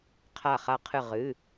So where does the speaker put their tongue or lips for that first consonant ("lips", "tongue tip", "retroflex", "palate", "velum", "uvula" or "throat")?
uvula